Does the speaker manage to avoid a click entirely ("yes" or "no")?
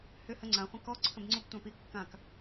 no